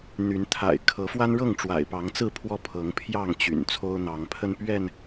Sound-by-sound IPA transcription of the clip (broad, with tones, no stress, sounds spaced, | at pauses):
n̪ y˨˦ n t̪ʰ a̰˨˩ ɪ̯ kʰ ɤ˨˦ f w a˦ n ɻ ɤ˥˨ ŋ ʈ͡ʂ w a̰˨˩ ɪ̯ p ɑ˨˦ ŋ t͡s ɹ̩˥˨ pʰ w ɔ˦ pʰ ɤ˨˦ ŋ pʰ j ɑ˥˨ ŋ t͡ɕ y̰˨˩ n t͡sʰ o˦ ʊ̯ n̪ ɑ˨˦ ŋ pʰ ə˦ n p ɥ ɛ˥˨ n